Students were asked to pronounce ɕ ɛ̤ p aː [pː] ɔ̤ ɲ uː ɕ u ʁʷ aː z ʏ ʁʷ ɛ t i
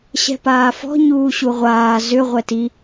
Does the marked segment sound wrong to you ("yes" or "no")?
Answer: yes